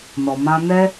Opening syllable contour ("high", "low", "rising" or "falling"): low